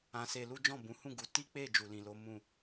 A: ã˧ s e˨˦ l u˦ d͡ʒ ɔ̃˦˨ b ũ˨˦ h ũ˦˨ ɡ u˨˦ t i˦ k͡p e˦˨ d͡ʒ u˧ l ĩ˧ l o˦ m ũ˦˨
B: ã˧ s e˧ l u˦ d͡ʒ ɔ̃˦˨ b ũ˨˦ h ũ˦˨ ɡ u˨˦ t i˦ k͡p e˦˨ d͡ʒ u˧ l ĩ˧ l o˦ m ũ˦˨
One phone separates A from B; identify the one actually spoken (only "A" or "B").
B